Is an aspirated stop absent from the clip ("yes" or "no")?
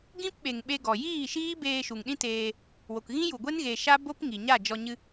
yes